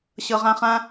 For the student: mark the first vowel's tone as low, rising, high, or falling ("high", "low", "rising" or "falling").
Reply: low